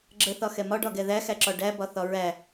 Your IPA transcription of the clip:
ɡ͡ǁ ə θ ɒ x ɛ m ɒ ɖ ɒ ɡ ɛ ð æ x æ ǁ ɒ ɖ æ b ɒ θ ɒ ɹ æ

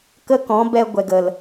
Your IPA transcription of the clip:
k ə˦ k ɔ̃˨˦ b ɛ˧ ɡʷ ɛ˨ ɡ ə˨ l

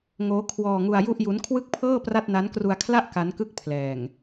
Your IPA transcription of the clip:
ŋ oː˦˥ kʰ w ɔː˧ ŋ u˧ a̯ j u˥˩ ʔ j u˦˥ n kʰ w ɯ˥˩ k̚ pʰ ɤː˥˩ p r a˥˩ t̚ n a˦˥ n k r u˧ a̯ kʰ l a˥˩ ʔ k a˦˥ n k ɯ˥˩ k̚ pʰ l ɛː˨˩ ŋ

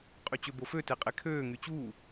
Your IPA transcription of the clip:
qʼ y t͡ɕ ø b o f ø t e qʼ e kʰ øː ŋ y t͡ɕ uː

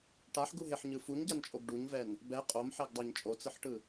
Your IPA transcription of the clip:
ʈ a ħ ɡ u ɦ e ħ ɲ ɯ f u ɲ ɟ a n t͡ʃʼ o ɡ ɖ u ɲ v ɛ n | b ɛ qʼ o m ħ ɛ ɡ dˤ a ɲ t͡ʃʼ o t͡s ɯ ħ ʈ ɯ

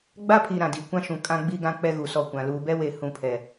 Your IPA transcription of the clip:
ɡ͡b a˦ pʰ i˨ ɾ ã˨ d i˨ kʷ ã˦ ʃ ũ˨ kʼ ã˦ ɡ͡b i˦ ɡ ã˦ k͡p ɛ˦ ɣ u˨ s ɔ˦˨ kʷ ã˨ l uː˨ b ɛ˦ w e˨ h ũ˦˨ pʰ ɛ˨

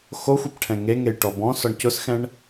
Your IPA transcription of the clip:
x o xʷ ɛ p ʈʰ ɛ̃ ŋ e ŋ e j ʈ ɔ b ɔ̃ s ɔ ɳ c ʊ s x ɛ̃ ɳ

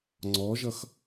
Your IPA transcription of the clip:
ŋ͡ǀ ɔ ʒ ʌ x

